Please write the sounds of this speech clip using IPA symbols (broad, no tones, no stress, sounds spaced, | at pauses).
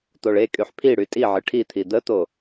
t̪ o ɭ e kʼ y ħ pʰ i ɽ y tʼ i ʕ ɨ ʈʰ i t̪ʰ i d̪ ə t̪ o